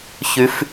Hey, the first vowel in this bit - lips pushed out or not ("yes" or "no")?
yes